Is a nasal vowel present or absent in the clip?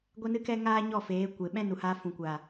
present